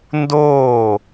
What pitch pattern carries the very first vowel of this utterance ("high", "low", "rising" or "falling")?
falling